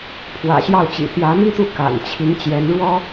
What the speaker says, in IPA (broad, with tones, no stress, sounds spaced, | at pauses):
pʰ w ä̰˨˩ ɕ j ɑ˥˩ ʊ̯ t͡ɕ ḭ˨˩ t̪ j ä˧˥ m i˥ t̪ u˥˩ k a̰˨˩ n t͡ɕʰ i˧˥ ŋ t͡ɕ j ɛ˧˥ n ɻ w ɔ˥